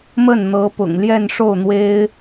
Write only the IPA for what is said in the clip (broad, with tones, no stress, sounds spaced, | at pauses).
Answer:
m ə˥˩ n n̪ ɤ˧˥ p ʊ̰˨˩ ŋ l j ɛ˥˧ n ʂ o˥˩ ʊ̯ n̪ w e˥ ɪ̯